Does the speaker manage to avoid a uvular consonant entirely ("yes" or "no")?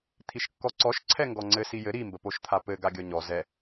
yes